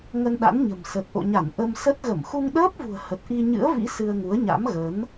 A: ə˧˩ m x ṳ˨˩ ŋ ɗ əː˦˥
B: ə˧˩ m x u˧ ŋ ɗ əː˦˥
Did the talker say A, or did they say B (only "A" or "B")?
B